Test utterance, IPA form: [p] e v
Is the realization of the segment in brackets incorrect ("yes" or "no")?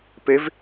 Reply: no